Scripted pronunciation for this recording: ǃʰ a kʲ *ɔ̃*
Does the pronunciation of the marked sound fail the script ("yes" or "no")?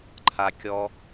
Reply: yes